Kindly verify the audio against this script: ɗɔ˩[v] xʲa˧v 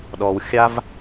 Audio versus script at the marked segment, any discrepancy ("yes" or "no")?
yes